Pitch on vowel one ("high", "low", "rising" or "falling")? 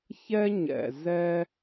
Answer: high